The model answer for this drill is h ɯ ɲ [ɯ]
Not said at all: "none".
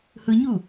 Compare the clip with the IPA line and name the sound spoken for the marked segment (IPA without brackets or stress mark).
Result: u